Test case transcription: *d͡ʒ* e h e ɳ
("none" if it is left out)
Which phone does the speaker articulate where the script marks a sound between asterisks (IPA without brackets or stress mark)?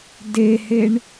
d